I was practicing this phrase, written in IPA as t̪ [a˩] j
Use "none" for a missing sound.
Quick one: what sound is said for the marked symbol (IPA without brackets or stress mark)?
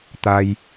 a˧